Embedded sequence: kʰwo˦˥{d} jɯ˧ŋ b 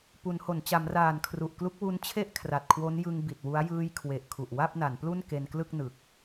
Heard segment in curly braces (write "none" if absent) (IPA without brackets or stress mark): n